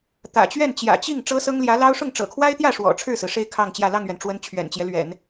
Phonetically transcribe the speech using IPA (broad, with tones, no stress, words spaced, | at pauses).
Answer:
t̪ä̰˨˩t͡ɕɥɛ˥˩nt͡ɕjä̰˨˩ t͡ɕi˥˩ŋ ʈ͡ʂɤ˥sɤ˥ŋljä˧˥lɑ˥ʊ̯ ʂʊ˥˩ŋʈ͡ʂɤ̰˨˩kʰwa˥ɪ̯t̪jä˥˩ ʂwɔ̰˨˩ʈ͡ʂʰɻ̩˥˩sɹ̩˩ ʂe˥˧ɪ̯ kʰɑ˥˧ŋt͡ɕjä˥˧ lɑ˥˩ŋɥɛ˩nʈ͡ʂwə˧˥n t͡ɕʰɥɛ̰˨˩nt͡ɕjɛ˦lɥɛ̰˨˩˦n